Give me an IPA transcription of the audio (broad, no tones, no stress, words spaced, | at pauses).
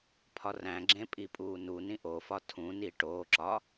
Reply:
pʰɒræ̃ɡ͡ǁẽ pʼipʼuːnunĩ ʔofɒ tʰũni ʈoːǁɒ